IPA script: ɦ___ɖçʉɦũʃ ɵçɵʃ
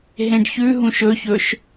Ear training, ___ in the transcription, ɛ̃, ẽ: ẽ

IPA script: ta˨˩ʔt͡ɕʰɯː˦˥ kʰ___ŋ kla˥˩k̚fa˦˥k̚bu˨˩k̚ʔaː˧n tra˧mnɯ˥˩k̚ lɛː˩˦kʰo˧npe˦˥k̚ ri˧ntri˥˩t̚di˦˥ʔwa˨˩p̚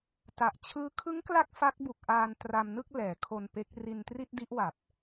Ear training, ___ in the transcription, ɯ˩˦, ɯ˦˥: ɯ˦˥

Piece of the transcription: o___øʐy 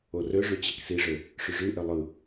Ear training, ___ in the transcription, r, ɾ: r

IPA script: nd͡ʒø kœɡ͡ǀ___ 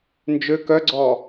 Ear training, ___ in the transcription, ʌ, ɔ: ɔ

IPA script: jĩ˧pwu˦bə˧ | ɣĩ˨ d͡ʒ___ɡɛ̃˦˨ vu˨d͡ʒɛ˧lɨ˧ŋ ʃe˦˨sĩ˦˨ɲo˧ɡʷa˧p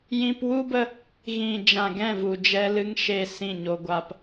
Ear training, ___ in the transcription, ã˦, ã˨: ã˨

